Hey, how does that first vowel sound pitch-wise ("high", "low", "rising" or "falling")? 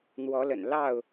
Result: rising